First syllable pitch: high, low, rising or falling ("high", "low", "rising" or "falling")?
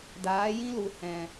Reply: rising